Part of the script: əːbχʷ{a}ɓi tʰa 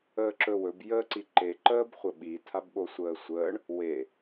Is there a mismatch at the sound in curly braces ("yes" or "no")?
yes